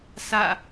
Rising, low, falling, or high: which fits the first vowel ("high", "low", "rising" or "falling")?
falling